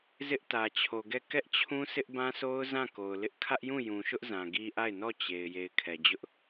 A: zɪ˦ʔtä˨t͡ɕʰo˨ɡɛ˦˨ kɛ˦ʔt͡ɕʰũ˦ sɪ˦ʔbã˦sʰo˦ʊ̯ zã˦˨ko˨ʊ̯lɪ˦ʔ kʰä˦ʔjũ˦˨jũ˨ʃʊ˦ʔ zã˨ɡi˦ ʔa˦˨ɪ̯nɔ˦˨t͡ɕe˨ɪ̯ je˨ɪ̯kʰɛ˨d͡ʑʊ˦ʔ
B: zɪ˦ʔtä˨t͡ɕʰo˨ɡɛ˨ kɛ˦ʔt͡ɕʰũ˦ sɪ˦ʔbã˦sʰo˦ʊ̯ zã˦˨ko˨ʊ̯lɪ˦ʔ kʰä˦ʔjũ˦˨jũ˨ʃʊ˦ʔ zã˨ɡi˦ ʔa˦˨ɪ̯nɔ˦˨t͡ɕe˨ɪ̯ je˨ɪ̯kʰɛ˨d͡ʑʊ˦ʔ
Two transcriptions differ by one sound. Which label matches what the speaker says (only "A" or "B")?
A